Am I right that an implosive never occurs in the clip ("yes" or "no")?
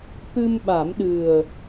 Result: no